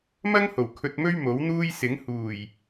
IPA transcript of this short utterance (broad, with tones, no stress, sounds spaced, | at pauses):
m ɐ˥ ŋ h o˨˩ w kʰ ɵ˧ t̚ m ɵ˥ ɥ m o˨˥ w n̪ uː˥ j s ɪ˨˥ ŋ h uː˨˩ j